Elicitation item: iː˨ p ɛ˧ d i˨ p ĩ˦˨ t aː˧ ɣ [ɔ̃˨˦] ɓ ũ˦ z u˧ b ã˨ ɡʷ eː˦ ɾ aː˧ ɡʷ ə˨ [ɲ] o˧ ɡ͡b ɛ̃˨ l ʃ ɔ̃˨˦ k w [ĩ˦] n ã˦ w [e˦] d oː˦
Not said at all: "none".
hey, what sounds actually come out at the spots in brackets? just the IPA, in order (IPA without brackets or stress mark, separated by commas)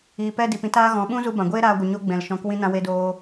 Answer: ɔ̃˨˦, ɲ, ĩ˦, e˦